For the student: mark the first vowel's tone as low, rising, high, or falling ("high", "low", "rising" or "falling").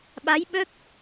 rising